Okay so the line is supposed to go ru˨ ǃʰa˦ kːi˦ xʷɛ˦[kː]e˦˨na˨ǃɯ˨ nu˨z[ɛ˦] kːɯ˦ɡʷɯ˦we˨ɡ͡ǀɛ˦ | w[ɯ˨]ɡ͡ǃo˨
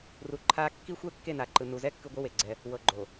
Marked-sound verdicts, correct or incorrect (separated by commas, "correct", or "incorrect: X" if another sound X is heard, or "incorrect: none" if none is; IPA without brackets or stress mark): correct, correct, incorrect: ɤ˨